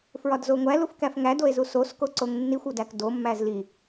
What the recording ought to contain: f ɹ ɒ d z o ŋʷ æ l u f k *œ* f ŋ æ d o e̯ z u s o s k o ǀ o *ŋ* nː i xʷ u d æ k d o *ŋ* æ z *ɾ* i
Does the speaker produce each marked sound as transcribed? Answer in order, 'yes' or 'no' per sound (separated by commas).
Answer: no, yes, no, no